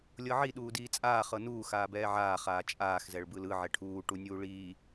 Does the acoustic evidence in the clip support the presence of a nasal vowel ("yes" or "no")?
no